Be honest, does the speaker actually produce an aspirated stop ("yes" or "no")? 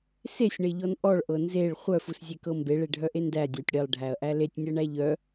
no